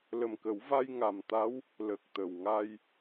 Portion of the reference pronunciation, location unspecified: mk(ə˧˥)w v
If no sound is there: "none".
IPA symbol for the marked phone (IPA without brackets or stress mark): ə˨˩˦